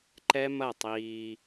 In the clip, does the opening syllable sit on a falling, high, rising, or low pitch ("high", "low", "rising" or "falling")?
high